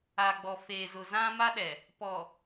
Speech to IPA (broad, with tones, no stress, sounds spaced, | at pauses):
a˨ ɡ͡b ɔ˨ f eː˨ z ʊ˨ z ã˦ m a˦ ɗ ɛ˨ | p ɔ˨